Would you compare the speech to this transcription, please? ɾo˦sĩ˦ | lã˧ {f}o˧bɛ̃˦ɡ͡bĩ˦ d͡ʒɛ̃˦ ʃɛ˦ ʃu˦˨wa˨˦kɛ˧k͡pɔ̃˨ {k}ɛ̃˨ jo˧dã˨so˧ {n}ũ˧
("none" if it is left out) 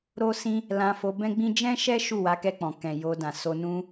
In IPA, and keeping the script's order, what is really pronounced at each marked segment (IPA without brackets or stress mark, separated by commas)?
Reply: f, k, n